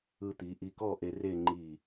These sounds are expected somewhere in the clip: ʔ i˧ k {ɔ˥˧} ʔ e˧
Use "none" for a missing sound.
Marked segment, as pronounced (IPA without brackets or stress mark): ɔ˥˧